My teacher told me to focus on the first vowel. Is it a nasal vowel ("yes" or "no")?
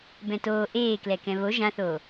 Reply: yes